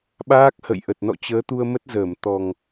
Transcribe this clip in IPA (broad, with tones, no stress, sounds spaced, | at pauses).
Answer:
ɓ aː˦˥ k̚ h ə̰˧˨ j ʔ ə˨˩ t̚ n ɔ̰˧˨ t͡ɕ əː˨˦ t̪ u˧ ə̯ m ə˦˥ t̚ z əː˧˩ m t̪ ɔ˨˩ ŋ